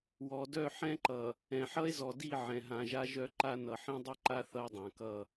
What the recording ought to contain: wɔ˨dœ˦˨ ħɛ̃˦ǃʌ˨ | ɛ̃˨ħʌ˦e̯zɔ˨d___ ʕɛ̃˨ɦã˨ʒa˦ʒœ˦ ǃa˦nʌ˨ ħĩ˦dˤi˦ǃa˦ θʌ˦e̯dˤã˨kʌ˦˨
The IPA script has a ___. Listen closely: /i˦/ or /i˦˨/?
i˦˨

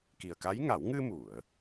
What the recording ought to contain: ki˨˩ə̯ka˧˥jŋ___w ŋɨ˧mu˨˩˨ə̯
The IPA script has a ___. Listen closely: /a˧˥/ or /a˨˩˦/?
a˨˩˦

